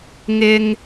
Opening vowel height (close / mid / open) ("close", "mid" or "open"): close